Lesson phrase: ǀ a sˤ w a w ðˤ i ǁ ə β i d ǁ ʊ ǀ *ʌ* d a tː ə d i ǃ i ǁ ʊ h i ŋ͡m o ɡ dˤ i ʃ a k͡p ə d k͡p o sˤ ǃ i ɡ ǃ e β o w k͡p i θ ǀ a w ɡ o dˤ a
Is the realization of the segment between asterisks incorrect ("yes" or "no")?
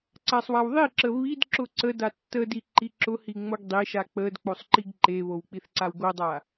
yes